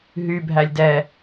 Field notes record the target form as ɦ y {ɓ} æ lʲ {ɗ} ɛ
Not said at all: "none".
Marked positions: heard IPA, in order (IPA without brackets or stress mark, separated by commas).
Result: bʱ, d